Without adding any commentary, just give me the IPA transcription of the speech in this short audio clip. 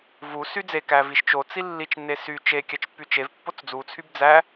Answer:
vu syd͡zekæ viʃt͡ʃot͡si lːit͡ʃnːe sy t͡ʃe kʲæt͡ʃpːyt͡ʃevpːot͡s d͡zut͡sʰyb d͡zæ

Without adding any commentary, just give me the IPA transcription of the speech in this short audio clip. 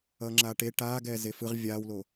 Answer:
ʌːŋ͡ǁaːʈe ʈaː ɡɛːzefɯʁ vʲaːwlo

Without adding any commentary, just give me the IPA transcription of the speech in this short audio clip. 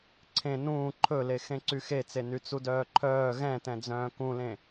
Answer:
ǀʰẽ nũː ǃʰɵle xẽǀyxet͡se nyt͡sudœːǃʰœː ɣɛ̃tɛ̃d͡zœ̃ː kũlẽ

